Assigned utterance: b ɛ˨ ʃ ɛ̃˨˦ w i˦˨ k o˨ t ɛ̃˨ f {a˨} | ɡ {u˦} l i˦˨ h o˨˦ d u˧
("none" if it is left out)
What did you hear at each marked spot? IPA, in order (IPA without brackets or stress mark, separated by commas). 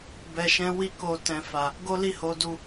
a˨, o˦